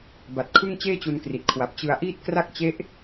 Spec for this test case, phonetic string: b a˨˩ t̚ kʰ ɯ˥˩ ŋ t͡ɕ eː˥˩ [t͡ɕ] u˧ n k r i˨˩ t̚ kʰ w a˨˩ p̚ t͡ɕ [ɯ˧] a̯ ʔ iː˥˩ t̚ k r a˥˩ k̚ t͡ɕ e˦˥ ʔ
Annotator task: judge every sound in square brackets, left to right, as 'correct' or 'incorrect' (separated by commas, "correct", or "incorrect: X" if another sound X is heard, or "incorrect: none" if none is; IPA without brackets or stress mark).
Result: correct, correct